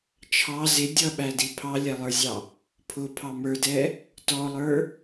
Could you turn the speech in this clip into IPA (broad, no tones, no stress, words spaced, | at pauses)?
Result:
t͡ʃʰɑ zɪ dʲʌɓædi pʰɑlʲælˠə˞zʲɑ | pʰʊpʰɑ mə˞dɛ | tɔlˠə˞